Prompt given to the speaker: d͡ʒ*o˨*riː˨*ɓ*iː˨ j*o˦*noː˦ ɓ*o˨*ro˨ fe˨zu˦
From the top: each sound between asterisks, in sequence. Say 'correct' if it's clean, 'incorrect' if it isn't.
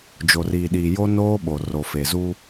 correct, incorrect, correct, correct

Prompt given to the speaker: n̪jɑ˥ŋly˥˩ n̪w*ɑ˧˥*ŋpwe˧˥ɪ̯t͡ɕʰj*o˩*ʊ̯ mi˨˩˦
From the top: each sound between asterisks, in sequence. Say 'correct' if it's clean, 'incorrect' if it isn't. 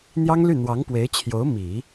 correct, incorrect

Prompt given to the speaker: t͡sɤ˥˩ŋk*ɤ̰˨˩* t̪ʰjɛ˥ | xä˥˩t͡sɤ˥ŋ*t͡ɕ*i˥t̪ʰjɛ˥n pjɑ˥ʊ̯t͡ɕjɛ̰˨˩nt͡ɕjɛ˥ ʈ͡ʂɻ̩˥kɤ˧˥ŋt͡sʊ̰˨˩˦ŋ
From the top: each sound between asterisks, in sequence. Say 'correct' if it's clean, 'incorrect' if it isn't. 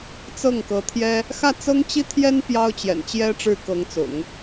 incorrect, correct

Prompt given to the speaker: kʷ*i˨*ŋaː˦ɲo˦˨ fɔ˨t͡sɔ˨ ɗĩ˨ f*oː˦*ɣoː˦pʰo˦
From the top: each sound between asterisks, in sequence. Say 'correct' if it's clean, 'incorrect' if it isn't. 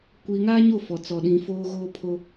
correct, correct

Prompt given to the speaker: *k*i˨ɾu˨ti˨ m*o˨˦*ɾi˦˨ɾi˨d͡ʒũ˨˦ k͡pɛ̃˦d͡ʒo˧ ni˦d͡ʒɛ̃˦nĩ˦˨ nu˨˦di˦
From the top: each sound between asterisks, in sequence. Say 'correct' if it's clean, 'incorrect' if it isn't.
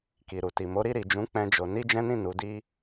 correct, correct

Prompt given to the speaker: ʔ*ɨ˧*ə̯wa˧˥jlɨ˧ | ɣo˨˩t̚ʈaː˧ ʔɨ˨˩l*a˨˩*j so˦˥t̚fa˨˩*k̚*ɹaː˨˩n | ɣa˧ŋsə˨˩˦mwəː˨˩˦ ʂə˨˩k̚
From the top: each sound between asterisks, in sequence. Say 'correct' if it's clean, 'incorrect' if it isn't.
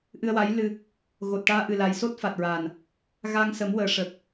correct, correct, incorrect

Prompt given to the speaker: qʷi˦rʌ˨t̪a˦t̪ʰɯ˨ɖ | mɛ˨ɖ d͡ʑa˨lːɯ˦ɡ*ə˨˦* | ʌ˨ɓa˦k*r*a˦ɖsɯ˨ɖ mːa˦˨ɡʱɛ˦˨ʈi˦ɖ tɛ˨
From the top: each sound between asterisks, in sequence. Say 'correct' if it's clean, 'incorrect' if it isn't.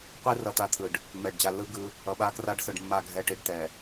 incorrect, correct

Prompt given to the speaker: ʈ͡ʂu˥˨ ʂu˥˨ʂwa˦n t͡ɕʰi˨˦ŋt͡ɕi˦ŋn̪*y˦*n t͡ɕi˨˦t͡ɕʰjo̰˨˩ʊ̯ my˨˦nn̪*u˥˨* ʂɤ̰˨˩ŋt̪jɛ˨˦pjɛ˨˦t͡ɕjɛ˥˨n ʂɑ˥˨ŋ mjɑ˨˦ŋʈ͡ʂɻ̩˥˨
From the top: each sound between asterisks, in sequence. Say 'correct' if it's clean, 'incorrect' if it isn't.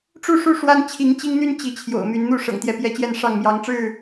correct, correct

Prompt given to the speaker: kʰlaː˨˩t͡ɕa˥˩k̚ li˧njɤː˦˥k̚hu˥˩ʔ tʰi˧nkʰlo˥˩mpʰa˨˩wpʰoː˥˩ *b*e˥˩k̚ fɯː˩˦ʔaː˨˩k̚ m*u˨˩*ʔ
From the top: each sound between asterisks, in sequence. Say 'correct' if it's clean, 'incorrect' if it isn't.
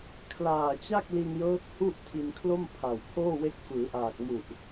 incorrect, correct

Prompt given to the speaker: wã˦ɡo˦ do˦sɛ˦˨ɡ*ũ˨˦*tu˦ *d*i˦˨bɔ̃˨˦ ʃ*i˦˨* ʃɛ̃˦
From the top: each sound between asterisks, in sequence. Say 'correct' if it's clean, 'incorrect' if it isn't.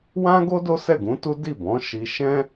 correct, correct, incorrect

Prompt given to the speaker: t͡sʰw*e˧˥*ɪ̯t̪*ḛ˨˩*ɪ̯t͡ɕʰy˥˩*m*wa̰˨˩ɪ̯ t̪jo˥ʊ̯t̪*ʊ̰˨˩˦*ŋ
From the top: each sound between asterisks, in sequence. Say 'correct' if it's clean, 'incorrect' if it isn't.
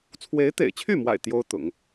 correct, correct, correct, correct

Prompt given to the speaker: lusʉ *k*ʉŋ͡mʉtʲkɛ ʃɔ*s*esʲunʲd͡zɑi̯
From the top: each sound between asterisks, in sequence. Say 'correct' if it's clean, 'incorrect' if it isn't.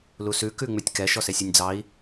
correct, correct

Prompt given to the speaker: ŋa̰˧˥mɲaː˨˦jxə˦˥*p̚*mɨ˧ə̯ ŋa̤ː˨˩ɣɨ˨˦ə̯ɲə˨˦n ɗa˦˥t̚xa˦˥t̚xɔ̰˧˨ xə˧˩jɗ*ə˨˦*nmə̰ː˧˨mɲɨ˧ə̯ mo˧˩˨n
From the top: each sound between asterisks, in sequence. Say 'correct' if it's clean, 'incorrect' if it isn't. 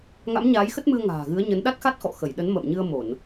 incorrect, correct

